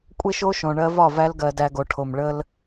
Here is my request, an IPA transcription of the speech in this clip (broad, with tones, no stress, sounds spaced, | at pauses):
kʷʼ e˦ ʃ o˦ ʃ õ˨ ɳ ɜ˧ v ɒ˦˨ v æ˧ l ɡ ɜ˨ d æ˧ ɡ o˨ ʈʰ o˨ m ɭ ə˧ l